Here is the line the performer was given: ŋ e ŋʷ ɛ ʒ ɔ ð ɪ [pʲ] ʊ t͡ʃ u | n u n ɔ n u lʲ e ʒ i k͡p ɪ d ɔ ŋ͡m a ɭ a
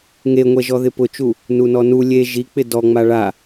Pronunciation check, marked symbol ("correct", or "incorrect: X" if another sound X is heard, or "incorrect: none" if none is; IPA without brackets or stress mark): incorrect: p